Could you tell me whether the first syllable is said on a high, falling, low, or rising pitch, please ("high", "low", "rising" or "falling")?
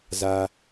low